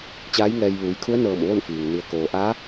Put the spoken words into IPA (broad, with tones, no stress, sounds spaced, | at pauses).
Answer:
t͡ɕ aː˧˥ j ŋ ɛː˧ j ʋ uː˩˧ j kʰ u˧˥ ə̯ n ɤː˧˩ m ʋ o˥˨ n f iː˩ ŋ n i˩ ə̯ k oː˩ ʔ aː˧˥